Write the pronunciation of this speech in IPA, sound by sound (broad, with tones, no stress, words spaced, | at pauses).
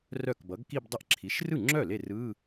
rœ˥˩kbʌ˩˥ɡki˥˧bdˤə˥˩ʔ ǁʰi˩˥ʃrɯ˥˩ŋ͡ǁœ˥˩ le˥˩rɯ˧˥˧